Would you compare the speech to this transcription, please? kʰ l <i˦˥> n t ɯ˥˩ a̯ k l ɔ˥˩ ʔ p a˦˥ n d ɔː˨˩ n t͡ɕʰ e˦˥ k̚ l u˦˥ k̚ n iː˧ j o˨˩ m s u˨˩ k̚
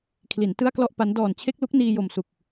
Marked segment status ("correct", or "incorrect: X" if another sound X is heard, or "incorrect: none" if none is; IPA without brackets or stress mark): incorrect: i˩˦